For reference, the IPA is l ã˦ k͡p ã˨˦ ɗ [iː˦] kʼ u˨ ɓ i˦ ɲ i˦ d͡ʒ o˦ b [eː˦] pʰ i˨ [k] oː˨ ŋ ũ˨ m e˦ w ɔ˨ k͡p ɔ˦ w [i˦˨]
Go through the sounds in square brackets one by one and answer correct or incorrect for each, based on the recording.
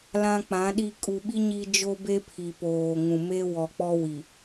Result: incorrect: i˦, incorrect: e˦, incorrect: p, incorrect: i˨

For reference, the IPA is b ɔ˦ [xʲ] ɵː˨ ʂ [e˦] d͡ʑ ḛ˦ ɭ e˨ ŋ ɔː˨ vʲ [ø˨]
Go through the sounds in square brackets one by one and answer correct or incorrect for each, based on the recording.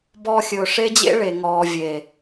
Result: correct, correct, incorrect: e˨

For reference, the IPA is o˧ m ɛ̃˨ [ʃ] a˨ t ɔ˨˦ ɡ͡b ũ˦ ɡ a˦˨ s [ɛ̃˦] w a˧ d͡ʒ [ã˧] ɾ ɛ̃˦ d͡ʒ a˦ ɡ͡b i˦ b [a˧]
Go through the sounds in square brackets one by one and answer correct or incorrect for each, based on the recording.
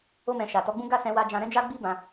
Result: correct, incorrect: ɛ̃˧, correct, incorrect: ã˧

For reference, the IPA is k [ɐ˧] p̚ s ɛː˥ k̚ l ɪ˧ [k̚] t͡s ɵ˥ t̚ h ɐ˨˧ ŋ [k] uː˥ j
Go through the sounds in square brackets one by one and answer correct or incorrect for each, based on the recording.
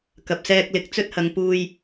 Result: correct, correct, incorrect: p

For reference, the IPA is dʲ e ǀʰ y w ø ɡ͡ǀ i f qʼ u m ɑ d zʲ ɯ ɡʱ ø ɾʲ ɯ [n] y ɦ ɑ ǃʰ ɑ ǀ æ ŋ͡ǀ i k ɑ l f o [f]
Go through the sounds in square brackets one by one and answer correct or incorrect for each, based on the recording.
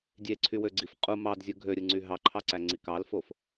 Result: incorrect: ŋ͡ǀ, correct

